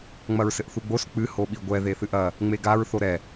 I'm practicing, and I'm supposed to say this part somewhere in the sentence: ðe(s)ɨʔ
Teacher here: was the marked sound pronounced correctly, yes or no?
no